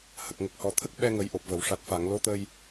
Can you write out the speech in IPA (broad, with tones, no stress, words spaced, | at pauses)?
hə˨˩k̚ŋə˨˩k̚hɔ˨˩t̪ʰə˦˥k̚ ɓɛ˧ŋə˨˩˦jʔo˨˩p̚və˨˩˨w ʂa˨˩t̚fa˨˩˨ŋ lo˧˥t̪ə˧j